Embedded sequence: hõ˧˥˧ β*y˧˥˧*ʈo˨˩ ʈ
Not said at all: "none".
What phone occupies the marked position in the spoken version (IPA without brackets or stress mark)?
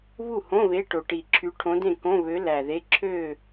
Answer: e˧˥˧